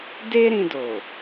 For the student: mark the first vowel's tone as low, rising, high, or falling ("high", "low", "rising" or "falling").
high